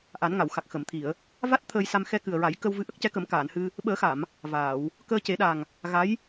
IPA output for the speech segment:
ʔ a˨˩˦ n ŋ a˨˩˨ w x a˨˩ k̚ x ə˨˩˨ m t̪ʰ i˨˩˨ ə̯ | v a˦˥ t̚ t̪ʰ əː˧ j s a˧ m x ɛ˧ k ɨ˨˩ ə̯ ɹ a˨˩˦ j k ə˧ w v ɨ˧˥ ʔ ə˦˥ k̚ c ɛ˧˥ k ə˨˩˦ m k aː˨˩˨ n h ɨ˧ | ɓ əː˨˩˦ x a˨˩˨ m | v aː˨˩˨ w | k əː˧ c e˨˩˦ ɗ a˨˩ ŋ | ɣ a˧˥ j

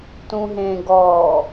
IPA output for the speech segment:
t ũ ɦ ẽ ɡ ɔ

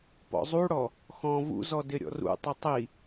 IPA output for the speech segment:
p ɔ̰ zˤ u ɽ ɔ | x ɔ̃ v ṵ z ɔ d ɪ ɾʲ ɔ̰ r ṵ tˤ ʊ tˤ i

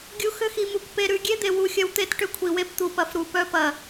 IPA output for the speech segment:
ɡʲ u˨ x ʏ˦ x i˨ m u˨ kʷ p e˨ ɾ ʉ˨ ɡʲ e˦ d̪ e˨ w u˨ xʲ ɐ˦ w t̪ e˦ t ʈ ʏ˦ kʷʰ i˨ w e˦ p t̪ u˨ p ɐ˨ f ɾ u˨ p œ˦ p ɐ˨

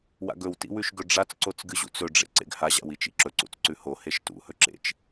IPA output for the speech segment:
w a̰ ɡ ɵ w t ḭ w ʉ ʃ ɡ ɵ ɖ͡ʐ a t͡s ǀ o t͡s ɡ ɨ ʑ ṵ t͡s ɵ ɖ͡ʐ ḛ ǀ ḛ ɡ h a ʑ a̰ w i t͡ʃ ḭ ǁ ɵ ǀ ṵ t͡s ǀ ʉ h o h e ʃ t ṵ h ɵ ǁ ḛ t͡ʃ

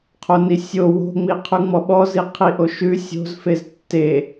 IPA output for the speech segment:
qʰ o n i sʲ o w o̤ ŋ͡m i qʰ ʉ ŋ͡m ɔ ɓ ɔ z i qʰ i ʔ o ʃ ʉ sʲ o̤ z f e z tː e

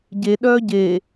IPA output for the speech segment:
ɟ e ɗ œː ɟ eː

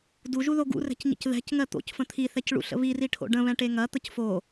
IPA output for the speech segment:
d u ʒ u ð o ɡ ṵ r ɛ̤ c ɲ ə̰ c ð ɛ̤ c ŋ ɜ t̪ o̰ c f ə̃ t̪ʰ i θ ɛ c ɭ ṵ ɬ ə̰ β i r i ʈʰ o̰ ɖ ə̃ β ɛ̃ ʈ e ŋ ɐ t̪ ə c f o

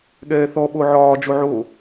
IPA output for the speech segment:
ɠ ɛː θ ɔ ɓ o ʕ ɒː d͡ʒ o ʕ o

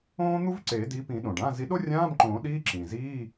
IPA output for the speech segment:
õː˥ n̪ u˥ v ǀ eː˨˩˦ d i˨˥ p ĩ˨˩˦ ɗ õ˩ ɖ ã˧˥˧ z i˨˥ ɗ o˥ rʲ ãː˧˥˧ m ǃ õː˨˩˦ ɗ iː˧˥˧ ǁ ĩ˩ z iː˧˥˧

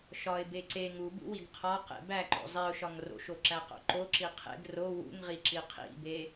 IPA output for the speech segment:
ʃ ɒ ɪ̯ b e ǀ e ŋ u b ṵ w i ɡ qʰ ɒ q ḛ b æ ǃ o̰ zˤ i ʊ̯ ʃ ɒ ŋ r o̰ ʃ o ǁ æ q o̰ ǃ o ǁ i qʰ ḛ ɡ r o w ṵ ŋ ʁ i ǁ i qʰ ḭ b e

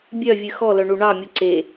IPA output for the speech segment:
bʲ œ vʲ ɨ x ɔ l œ ɳ u ɳ ɑ mʲ u ǀ e

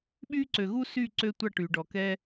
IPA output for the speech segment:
ɓ yː˥ ǀ ø˩ ɣ uː˥ s yː˥˩ ǀ ø˧ tʷ ɑ˥˩ ʈ yː˩ ɖ ɔ˩ k ɛ˧

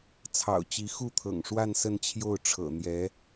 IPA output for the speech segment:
t͡sʰ ɑ̰˨˩ ʊ̯ t͡ɕ i˧˥ x u˥˩ t̪ʰ ɤ̰˨˩ ŋ ʂ w a˥˧ n s ə˥˧ n t͡ɕʰ j o˥˩ ʊ̯ ʈ͡ʂʰ ɤ̰˨˩ n̪ j ɛ˧˥

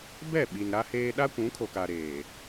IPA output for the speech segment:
b ɛ˦˨ ɓ i˨ n ɾ a˦ h eː˦ ɗ a˦ kʷ ũ˨˦ kʰ o˨ k a˨ ɾ eː˨

